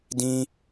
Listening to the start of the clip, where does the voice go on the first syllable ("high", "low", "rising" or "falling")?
high